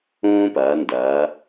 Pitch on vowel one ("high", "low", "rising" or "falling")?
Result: high